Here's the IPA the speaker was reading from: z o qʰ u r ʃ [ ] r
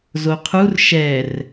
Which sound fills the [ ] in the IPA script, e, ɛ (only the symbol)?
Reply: ɛ